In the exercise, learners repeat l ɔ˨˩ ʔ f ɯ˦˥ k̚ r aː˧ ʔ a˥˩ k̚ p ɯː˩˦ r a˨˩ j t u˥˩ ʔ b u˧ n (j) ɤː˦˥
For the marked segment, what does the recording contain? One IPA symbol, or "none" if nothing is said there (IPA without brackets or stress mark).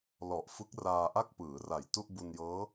j